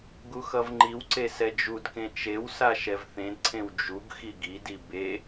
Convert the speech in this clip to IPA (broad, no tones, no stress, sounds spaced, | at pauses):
ɡ u x ʌ v ŋ͡ǃ i w ǀ e s ɛ d͡ʒ u d k ẽ t͡ʃ e w s a ʃ ɛ v θ ẽ d ǀʰ ẽ w d͡ʒ u ɡ x i ɡ i d i b e